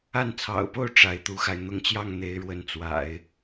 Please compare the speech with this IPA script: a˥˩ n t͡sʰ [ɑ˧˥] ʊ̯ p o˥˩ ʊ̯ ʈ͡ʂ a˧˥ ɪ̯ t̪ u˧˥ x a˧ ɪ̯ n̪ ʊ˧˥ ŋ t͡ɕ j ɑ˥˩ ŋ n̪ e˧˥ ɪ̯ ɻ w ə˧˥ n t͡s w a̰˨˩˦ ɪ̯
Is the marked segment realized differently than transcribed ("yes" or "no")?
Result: yes